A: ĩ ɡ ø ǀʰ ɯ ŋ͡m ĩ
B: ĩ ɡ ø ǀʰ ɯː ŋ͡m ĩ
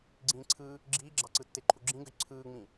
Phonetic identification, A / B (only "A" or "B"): B